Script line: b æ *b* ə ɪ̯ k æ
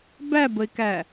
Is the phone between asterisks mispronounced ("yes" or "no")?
no